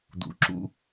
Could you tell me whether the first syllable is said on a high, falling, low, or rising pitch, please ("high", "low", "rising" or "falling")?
rising